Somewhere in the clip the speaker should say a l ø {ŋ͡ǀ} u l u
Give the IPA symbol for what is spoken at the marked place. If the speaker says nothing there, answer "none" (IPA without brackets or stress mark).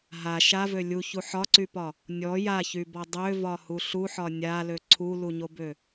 ǀʰ